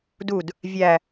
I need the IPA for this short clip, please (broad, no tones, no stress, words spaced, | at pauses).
dud | vʲæ